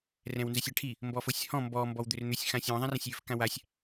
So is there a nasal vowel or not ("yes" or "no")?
yes